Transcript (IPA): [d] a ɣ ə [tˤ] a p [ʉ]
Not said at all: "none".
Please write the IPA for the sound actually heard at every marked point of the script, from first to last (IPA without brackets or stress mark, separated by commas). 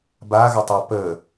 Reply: b, tˤ, ə